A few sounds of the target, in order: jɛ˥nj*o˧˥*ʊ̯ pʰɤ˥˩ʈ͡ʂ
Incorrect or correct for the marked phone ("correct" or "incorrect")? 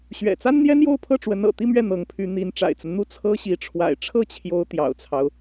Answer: incorrect